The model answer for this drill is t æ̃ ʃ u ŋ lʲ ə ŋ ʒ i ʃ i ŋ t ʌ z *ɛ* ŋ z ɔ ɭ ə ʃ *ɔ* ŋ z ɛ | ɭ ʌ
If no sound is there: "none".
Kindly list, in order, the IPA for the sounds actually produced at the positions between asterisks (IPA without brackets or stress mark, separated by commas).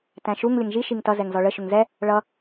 ɛ, ʊ